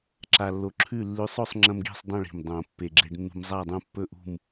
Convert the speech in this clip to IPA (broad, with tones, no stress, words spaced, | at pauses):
ǁa˧lːo˧ ǁʰʉ˥˨ lːʉ˧sˤo˥˨sˤŋ͡ǁɐ̃˧m ɡi̤˥˨sˤdˤõ˥˨ɭi̤˨˩m dˤõ˨˩ pːe˨˩ɡ͡ǁe˧ɖnːṳ˧m zˤa˥˨dˤũ˥˨ pːɵ˥˨ʔṳ˥˨m